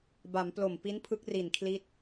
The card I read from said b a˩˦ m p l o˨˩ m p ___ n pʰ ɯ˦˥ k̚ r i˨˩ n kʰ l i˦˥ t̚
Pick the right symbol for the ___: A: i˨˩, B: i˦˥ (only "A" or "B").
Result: B